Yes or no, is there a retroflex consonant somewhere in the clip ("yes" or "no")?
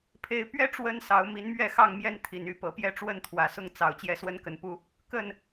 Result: yes